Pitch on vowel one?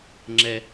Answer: low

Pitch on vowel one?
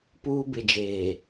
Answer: high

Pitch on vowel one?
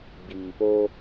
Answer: low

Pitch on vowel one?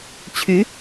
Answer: rising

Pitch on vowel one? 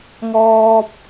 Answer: high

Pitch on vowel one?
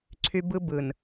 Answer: high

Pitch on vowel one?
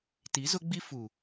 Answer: rising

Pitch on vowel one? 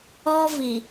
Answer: high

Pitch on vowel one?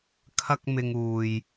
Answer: high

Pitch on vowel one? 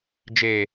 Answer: low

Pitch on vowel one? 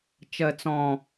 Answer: low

